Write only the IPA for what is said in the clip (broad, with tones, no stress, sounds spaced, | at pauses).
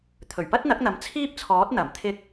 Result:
t̪ʰ ɵ˨˩ ɥ p ɐ˥ t̚ n̪ ɐ˨˥ k̚ n̪ ɐ˨˥ m t͡sʰ iː˥ p̚ t͡sʰ ɔː˨˥ t̚ n̪ ɐ˨˩ m t̪ʰ ɪ˧ k̚